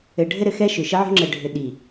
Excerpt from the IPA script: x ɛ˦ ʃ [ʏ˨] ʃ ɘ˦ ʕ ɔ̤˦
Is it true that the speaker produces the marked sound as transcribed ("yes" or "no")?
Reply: yes